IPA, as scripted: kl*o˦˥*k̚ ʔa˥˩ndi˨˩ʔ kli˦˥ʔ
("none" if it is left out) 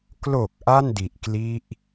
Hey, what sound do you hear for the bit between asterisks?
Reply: o˨˩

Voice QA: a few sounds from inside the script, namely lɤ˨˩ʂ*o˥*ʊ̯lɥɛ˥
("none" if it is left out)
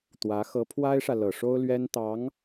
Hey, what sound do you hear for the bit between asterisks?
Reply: o˥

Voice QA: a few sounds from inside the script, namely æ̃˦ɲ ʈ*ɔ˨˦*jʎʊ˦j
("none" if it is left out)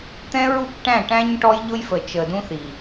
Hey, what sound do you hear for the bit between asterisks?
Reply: ɔ˦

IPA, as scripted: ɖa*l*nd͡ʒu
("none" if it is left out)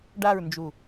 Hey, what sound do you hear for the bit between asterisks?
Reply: ɹ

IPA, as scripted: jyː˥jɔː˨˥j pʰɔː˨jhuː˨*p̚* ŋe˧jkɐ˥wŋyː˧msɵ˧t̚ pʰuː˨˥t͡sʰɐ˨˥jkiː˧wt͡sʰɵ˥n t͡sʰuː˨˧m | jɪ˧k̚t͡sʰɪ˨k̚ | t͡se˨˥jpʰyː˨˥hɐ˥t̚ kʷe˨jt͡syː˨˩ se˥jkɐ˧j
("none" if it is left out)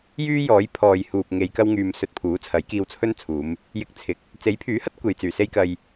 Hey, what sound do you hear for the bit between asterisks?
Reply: p̚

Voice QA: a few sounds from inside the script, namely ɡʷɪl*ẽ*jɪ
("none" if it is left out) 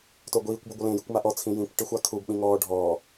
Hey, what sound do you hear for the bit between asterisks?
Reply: ẽ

